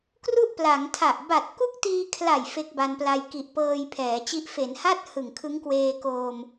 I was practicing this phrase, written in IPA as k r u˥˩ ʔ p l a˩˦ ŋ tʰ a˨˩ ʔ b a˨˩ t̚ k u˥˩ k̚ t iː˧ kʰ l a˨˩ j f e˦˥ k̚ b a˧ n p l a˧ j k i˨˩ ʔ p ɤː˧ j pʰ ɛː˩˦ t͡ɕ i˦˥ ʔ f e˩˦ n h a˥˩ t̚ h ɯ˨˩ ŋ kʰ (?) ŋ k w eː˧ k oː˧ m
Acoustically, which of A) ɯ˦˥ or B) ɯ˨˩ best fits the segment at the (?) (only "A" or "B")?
A